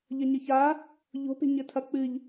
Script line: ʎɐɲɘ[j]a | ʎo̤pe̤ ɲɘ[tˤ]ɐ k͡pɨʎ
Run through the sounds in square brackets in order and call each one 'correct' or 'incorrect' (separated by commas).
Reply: incorrect, incorrect